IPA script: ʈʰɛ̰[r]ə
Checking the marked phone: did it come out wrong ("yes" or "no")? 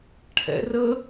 no